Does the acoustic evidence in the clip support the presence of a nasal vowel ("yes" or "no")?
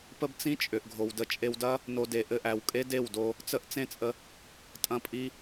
yes